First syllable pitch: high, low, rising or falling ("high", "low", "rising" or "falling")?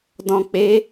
low